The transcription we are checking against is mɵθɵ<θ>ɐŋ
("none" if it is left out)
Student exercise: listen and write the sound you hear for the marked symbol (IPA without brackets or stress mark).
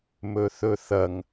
θ